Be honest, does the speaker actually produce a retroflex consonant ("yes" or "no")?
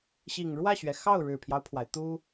yes